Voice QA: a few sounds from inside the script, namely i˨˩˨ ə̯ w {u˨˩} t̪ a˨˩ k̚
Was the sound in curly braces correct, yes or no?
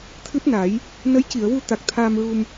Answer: no